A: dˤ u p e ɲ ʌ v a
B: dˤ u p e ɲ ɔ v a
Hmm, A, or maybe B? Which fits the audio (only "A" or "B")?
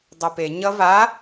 A